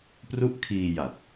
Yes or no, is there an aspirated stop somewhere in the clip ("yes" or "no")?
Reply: yes